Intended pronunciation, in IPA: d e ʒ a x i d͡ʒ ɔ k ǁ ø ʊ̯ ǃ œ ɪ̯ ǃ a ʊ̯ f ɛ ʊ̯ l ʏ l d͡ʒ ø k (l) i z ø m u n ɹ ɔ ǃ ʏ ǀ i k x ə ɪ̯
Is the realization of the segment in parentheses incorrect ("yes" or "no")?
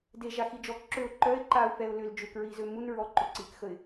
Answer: yes